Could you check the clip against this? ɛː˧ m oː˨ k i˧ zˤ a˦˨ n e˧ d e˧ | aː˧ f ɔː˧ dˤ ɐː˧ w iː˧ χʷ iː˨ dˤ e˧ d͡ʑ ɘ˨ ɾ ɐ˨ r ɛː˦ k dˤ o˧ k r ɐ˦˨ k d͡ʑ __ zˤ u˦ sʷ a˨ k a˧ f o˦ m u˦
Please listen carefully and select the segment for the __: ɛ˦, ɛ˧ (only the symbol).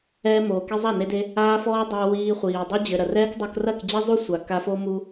ɛ˦